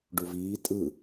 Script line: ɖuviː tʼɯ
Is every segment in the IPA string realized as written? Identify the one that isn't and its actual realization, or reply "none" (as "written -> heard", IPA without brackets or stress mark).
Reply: none